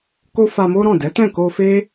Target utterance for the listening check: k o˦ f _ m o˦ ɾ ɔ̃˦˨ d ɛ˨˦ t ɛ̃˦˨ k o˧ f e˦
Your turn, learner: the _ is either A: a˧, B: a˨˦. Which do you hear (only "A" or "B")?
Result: A